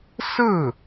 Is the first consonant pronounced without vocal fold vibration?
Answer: yes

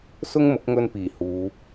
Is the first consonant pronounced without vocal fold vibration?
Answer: yes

